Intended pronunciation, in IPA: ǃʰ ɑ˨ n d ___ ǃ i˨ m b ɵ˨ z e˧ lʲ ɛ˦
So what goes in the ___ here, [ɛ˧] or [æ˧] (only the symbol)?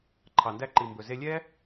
æ˧